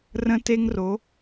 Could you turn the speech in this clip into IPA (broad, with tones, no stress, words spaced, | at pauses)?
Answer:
rə̃˧te˧ŋro˩˧